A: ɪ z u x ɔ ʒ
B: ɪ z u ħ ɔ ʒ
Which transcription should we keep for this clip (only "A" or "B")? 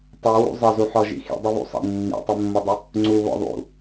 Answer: B